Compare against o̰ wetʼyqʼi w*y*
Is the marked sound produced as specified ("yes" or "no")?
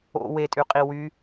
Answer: yes